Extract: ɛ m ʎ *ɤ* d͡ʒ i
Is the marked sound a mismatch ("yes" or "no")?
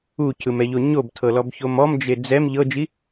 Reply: no